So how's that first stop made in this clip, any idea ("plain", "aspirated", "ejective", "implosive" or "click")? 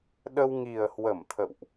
implosive